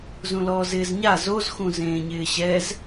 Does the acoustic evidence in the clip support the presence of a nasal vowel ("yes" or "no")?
yes